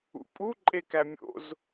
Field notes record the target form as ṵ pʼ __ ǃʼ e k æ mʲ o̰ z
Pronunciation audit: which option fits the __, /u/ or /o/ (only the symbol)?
u